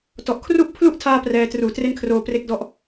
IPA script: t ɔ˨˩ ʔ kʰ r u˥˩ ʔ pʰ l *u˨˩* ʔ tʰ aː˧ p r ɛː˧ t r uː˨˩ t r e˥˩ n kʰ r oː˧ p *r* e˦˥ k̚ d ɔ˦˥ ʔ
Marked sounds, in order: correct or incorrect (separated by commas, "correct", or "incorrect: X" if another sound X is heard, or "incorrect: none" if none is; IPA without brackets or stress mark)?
incorrect: u˥˩, correct